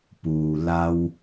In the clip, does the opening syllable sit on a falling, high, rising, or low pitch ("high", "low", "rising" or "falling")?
low